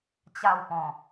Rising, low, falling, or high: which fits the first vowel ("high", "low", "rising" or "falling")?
falling